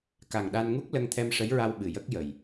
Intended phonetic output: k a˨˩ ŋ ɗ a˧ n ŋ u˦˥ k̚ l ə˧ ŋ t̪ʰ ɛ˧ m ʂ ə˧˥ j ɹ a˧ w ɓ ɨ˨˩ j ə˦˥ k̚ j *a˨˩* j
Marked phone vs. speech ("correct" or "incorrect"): incorrect